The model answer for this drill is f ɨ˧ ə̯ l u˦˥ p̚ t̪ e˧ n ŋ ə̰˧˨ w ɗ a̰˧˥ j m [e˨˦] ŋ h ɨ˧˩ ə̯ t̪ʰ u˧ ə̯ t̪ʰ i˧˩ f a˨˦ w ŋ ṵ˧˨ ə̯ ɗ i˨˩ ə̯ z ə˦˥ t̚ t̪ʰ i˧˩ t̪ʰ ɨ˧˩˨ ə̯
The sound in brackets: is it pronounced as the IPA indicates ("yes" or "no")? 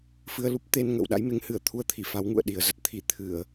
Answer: yes